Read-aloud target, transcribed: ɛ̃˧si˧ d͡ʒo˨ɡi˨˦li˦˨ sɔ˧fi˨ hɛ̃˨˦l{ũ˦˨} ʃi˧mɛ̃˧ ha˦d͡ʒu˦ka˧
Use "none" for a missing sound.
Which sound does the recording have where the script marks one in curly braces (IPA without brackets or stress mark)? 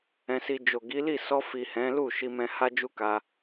u˦˨